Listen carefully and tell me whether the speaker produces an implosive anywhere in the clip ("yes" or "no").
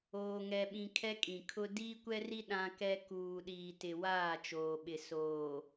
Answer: yes